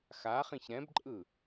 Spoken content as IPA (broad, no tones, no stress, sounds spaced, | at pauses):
x a χ ĩ ç ɾ ɛ̃ b ǃʼ ɯ